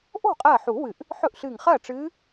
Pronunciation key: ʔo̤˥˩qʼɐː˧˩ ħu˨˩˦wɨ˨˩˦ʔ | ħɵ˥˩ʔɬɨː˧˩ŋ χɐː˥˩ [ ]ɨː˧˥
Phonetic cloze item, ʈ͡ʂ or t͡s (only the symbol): ʈ͡ʂ